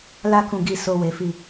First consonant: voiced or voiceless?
voiced